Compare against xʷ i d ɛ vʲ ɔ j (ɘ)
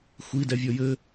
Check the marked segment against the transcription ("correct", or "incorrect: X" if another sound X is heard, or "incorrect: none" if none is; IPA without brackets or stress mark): correct